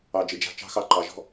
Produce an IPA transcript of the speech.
ɑ˨ d͡ʒ ɪ˨ d͡ʒ a̤˧ t͡ʃ ɑ̤˦ x ɑ˦ ǃ ɑ˨ ʒ ɔ̤˦

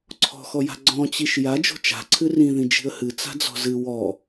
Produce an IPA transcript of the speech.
ǀʰ ɔ̤ x ɔ j a̤ ɡ͡ǀ ɔ̃ t͡ɕ i ʃ j a d͡ʒ o̤ t͡ʃ a̤ ǀʰ ɨ r ĩ ð ĩ d͡ʒ i̤ ə̯ h ɨ t͡s a̤ d͡z ɔ̤ z ɨ w ɔ

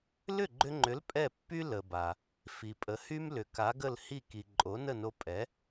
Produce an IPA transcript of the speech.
l ʏ˥˩ ɡ͡ǃ ʏ˧ ŋ͡ǃ ʏ˩˥ l pʼ ɛ˥˩ pː y˥ l ə˩ b a˩ | f i˩ pʼ ə˩˥ h y˥ m l ʏ˩ k a˩˥ ɡ ə˥˩ l h i˥˩ k i˩ ǃʼ o˩˥ n ə˥˩ n o˧ pʼ ɛ˩˥

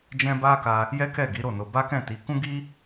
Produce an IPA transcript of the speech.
d͡ʒ ɛ̃˦ b a˦ k a˧ | j ɛ˦ k ɛ˦˨ ɡ i˨˦ ɾ o˦˨ n o˧ b a˦ k ɛ̃˦˨ t i˨˦ k ũ˦ ɡ i˦

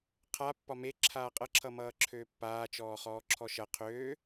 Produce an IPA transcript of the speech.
qʰ a pː ɒ m e ǁʰ aː qʼ ʌ ǁʰ ʌ m ʌː ǁʰ øː pː aː t͡ʃ ɔː χ ɔː ǁʰ ɔ ʃ ʌ qʰ øː

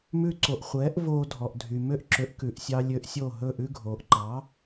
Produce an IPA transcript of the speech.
m ʉ˧ ǀ o˩ ʔ χʷ ɛː˩˥ ʔ v oː˧ dʱ ɔ˩ ʔ dʱ y˩ m ø˥˩ ʔ ǁ ø˩˥ ʔ k ʉ˩ ʔ sʲ ɑ˧ lʲ ø˧ ʔ sʲ o˥˩ ɦ ɵ˥˩ ʔ ʉ˥ ɡʱ oː˩ ʔ ǃ ɑ˩˥

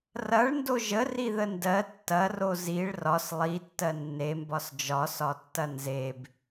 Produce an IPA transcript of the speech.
r ɐ ɭ n d o ʒ ə r i ð ə n d ɜ tː ɐ r o z i ɭ r ɒ s lˠ i tː ɜ nː e m b ɒ s d͡ʒ ɒ s ɒ tː ɐ n z e b

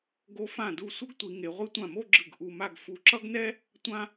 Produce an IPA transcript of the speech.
ɡ o˧ f ã˧˩ d u˧˩ sʷ ʌ˥ ɡ tʷ i˩˧ ŋ e˩˧ ʁʷ i˧ tʷ ã˧˩ m o˥˧ ɡ͡ǁ ɯ˧˩ ɡ ʔ u˧ m a˥˧ ɡ f u˧ ǁ ʌ˥ ɡ n ɛ˥ | tʷ ã˧

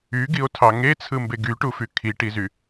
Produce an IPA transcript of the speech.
y ɡ i o̯ tʰ ɑ ŋ e t͡sʰ ɯ m b e ɡ y ʈ u f y kʰ i ʈ i z y

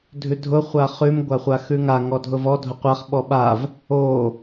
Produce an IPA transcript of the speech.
dʱ ʉ dʱ ʊ χʷ a χ ʉ m ɡʷ a χʷ a x ʉ ŋ a ŋ ɔ dʱ ʊ v ɔ dʱ ʊ qʷ a χ ɓ ɔ ɓ a v | o

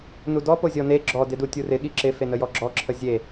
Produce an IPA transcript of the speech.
n u d ɔ p o zʲ ɔ n e ɡ͡ǁ ɔ d ɪ d u tʲ u r ɪ ɠ i ǁ ɪ f e n ə j ɔ ɡ͡ǁ ɔ ǁʰ ə zʲ e

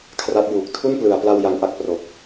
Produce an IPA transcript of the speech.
kʰ r a˦˥ t̚ j uː˨˩ k̚ tʰ u˥˩ n p l ɯ˩˦ a̯ p l a˧ w j a˧ ŋ ʔ a˦˥ k̚ p r o˨˩ k̚

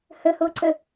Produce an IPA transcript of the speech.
h ə h o ǀ ə

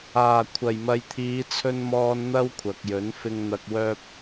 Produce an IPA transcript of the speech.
aː˨˩ kʷʰ ɐ˨˩ j m ɐ˨ j t̪ʰ iː˨˧ t͡sʰ ɵ˧ n m ɔː˧ n n̪ ɐ˥ w kʷʰ ɐ˨ k̚ j ɵ˨˥ n f ɪ˧ ŋ n̪ ɐ˧ k̚ w œː˥ p̚

